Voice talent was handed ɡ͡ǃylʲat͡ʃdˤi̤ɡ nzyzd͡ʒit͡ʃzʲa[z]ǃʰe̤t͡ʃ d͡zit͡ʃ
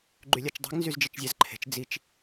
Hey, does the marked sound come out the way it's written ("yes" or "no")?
yes